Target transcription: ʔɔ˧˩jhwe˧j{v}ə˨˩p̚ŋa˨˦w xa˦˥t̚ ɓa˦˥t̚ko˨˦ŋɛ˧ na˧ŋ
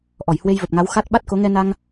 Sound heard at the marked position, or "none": v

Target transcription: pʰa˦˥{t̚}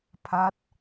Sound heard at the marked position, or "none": t̚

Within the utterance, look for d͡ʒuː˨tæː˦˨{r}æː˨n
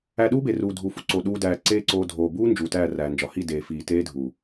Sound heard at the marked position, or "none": r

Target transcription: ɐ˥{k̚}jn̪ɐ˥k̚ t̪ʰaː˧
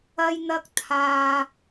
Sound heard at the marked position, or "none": none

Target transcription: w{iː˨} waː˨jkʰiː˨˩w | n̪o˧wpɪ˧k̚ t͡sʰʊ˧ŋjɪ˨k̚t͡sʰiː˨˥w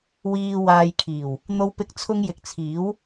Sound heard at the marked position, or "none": iː˨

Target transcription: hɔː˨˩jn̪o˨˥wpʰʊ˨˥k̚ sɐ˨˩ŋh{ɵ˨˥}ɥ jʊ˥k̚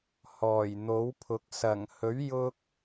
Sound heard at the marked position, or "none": ɵ˨˥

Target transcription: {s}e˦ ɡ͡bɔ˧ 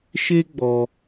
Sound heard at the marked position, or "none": ʃ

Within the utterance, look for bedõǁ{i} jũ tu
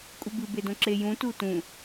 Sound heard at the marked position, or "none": e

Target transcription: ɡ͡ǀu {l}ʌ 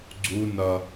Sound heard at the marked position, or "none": n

